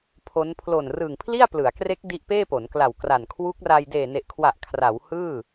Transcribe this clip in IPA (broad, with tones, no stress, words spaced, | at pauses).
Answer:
pʰo˦˥n pʰlo˨˩nrɯː˨˩ŋ pʰli˥˩a̯plɯ˩˦a̯kre˦˥k̚ di˦˥ʔpeː˥˩ po˩˦nkla˨˩wkra˨˩n kʰwu˦˥k̚ra˧j deː˨˩ne˨˩ʔkʰwa˨˩ʔ kʰra˩˦w hɯː˥˩